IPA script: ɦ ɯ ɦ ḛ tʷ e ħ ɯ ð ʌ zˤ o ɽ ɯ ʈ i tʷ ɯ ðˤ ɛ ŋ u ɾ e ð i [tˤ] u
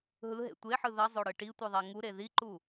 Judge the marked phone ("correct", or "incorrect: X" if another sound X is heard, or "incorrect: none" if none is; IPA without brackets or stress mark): incorrect: ǃ